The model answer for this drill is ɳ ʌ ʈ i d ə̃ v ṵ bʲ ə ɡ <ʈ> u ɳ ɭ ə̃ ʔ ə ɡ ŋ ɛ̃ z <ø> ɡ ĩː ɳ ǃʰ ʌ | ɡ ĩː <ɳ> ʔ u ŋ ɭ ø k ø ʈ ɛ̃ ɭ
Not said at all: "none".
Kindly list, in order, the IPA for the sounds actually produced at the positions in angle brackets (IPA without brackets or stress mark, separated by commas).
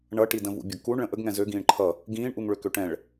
k, ø, ɳ